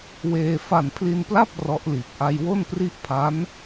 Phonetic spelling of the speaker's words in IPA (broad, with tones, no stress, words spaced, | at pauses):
weː˧ fa˨˩npʰli˧npla˥˩p̚ rɔ˦˥ʔliː˨˩p̚ ʔa˧jwo˥˩npri˥˩ʔ pʰa˦˥n